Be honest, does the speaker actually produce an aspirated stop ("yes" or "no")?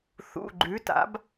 no